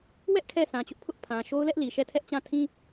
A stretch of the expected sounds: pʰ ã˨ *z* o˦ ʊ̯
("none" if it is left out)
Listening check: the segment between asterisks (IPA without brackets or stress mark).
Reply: ʃ